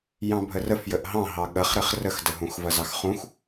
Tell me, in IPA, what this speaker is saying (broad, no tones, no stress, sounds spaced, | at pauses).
j ɑ̃ bʱ ə r ə f j ə ʔ ɦ ɑ̃ ɦ ɑ ɠ ɐ χ ɾ ɘ χ r ə x d ə ɦ ũ x v ɐ z ɑ x χ ũ x